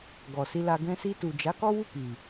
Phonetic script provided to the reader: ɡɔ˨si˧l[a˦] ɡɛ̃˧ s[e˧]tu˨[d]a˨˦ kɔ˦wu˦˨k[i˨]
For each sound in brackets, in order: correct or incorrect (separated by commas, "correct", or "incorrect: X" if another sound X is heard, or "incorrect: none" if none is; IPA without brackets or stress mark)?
incorrect: a˧, incorrect: i˧, incorrect: d͡ʒ, correct